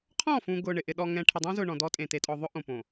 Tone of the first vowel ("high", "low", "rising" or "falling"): falling